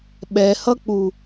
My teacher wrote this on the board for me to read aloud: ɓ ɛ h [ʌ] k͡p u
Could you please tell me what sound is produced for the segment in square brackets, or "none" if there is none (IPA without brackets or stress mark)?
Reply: ʌ